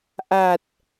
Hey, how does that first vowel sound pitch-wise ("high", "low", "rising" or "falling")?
low